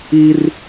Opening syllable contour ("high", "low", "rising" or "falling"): high